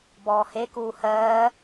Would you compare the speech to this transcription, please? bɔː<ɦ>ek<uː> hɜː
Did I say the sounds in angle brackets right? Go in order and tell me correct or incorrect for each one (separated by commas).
incorrect, correct